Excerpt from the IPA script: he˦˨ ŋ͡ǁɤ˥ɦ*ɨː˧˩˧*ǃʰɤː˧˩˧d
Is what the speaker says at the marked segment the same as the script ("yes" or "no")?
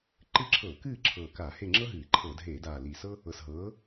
yes